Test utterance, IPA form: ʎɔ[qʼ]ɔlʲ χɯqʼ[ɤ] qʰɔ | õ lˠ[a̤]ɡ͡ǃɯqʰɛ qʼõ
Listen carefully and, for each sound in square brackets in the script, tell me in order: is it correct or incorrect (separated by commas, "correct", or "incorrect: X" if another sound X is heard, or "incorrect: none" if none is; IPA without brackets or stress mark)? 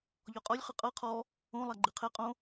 correct, correct, incorrect: a